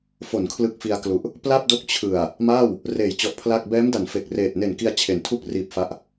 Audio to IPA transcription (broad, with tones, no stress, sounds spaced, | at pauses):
f o˩˦ n kʰ l ɯ˦˥ k̚ f i˧ a̯ k l u˨˩ ʔ | p l a˥˩ p̚ d o˦˥ k̚ t͡ɕʰ ɯ˨˩ a̯ | m aː˥˩ w | r eː˨˩ j t͡ɕ ɔ˨˩ ʔ pʰ l a˥˩ k̚ b ɛː˦˥ m d a˩˦ n f e˨˩ k̚ r eː˨˩ t̚ n e˨˩ n k i˧ a̯ t͡ɕʰ e˩˦ n tʰ u˥˩ k̚ r iː˨˩ p̚ f a˦˥ ʔ